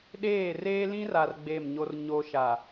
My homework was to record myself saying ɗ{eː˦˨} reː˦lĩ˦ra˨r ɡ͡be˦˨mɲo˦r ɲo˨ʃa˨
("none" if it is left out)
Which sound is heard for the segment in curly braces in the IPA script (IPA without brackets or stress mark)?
eː˦˨